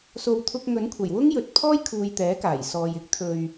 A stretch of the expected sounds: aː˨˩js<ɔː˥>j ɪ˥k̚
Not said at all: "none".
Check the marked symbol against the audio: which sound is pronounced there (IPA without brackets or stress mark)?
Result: ɔː˨